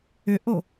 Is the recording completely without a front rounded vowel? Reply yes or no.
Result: no